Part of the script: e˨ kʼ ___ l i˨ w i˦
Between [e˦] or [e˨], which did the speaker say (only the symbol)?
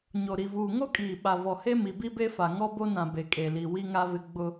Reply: e˨